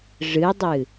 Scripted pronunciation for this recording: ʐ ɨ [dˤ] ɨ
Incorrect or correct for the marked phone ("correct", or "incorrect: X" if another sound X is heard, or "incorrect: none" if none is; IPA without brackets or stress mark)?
correct